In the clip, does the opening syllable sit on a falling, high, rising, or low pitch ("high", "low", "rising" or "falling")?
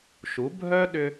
rising